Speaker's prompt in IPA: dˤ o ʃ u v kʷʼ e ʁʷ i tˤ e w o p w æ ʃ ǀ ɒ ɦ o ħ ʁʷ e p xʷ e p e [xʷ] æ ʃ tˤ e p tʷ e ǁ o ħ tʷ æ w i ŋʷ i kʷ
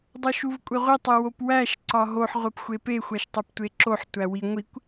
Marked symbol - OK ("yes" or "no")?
yes